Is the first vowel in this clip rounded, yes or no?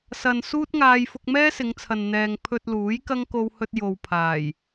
no